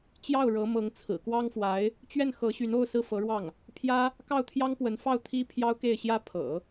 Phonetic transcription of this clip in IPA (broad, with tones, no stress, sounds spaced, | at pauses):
t͡ɕ j ɑ˥˩ ʊ̯ ɻ ɤ˧˥ m ɤ˧˥ ŋ t͡sʰ ɹ̩˨˩ k w ɑ˥ ŋ f w a˧˥ ɪ̯ | t͡ɕ ɥ ɛ˥˩ n x ɤ˧˥ ɕ y˧˥ n o˥˧ ʊ̯ s ɹ̩˥˩ f ɤ˧˥ ɻ w ɑ˥˩ ŋ | pʰ j ä˥ | k ɑ˥˩ ʊ̯ t̪ʰ j ɑ˥ ŋ p w ə˧˥ n f ɑ˥˩ ʊ̯ t̪ʰ i˥ pʰ j ɑ˥ ʊ̯ k e˥˩ ɪ̯ ɕ j ä˥ pʰ ɤ̰˨˩˦